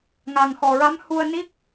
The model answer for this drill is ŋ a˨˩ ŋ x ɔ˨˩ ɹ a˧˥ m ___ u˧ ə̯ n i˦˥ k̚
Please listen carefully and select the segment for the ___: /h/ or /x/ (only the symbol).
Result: h